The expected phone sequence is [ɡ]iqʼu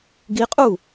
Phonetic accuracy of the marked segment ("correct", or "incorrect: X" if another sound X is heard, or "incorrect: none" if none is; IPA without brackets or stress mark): correct